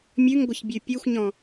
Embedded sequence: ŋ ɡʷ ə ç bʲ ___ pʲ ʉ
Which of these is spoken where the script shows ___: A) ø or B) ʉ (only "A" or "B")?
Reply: B